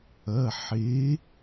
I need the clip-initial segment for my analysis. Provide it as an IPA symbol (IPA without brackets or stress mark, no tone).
ɐ